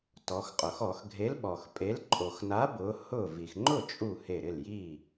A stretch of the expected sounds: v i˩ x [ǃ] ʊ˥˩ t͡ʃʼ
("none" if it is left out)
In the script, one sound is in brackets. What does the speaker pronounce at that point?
ŋ͡ǃ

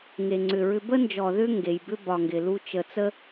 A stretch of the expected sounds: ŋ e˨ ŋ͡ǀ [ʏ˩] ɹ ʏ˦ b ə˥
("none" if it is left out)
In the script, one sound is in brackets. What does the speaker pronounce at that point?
ʏ˨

